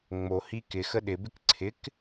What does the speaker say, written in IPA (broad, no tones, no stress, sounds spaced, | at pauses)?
ŋ͡m o h i k ɪ x ə ɗ ɪ b ɪ k ǀʰ ɪ k